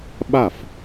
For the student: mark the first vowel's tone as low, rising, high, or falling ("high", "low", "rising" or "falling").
falling